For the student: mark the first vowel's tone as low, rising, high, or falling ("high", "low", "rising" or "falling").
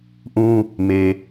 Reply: high